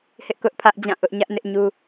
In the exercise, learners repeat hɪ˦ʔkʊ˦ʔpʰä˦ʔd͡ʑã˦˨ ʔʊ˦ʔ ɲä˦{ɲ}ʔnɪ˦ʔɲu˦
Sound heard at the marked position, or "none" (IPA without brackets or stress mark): none